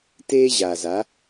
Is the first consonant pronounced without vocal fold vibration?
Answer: yes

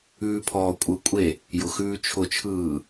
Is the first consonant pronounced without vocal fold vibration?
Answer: yes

